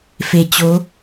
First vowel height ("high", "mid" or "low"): mid